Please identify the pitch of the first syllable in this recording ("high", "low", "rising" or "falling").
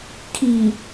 low